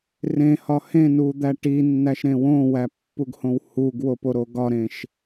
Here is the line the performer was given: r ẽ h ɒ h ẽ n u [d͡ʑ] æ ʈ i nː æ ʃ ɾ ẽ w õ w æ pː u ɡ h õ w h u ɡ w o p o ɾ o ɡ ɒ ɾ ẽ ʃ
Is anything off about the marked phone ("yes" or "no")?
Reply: yes